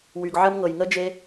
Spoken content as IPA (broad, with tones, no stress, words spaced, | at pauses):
wy˨ɡʕə˦mŋɤ˨j ŋə˦ d͡ʒe˦